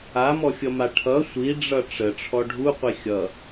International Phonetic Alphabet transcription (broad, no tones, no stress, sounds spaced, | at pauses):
a m ɔ fʲ ʌ m a ʈʰ ʌ sʷ i ɖ͡ʐ ʌ ʈ͡ʂ ə ʈ͡ʂʰ ɔ ɖʱ u qʷ i xʲ ʌ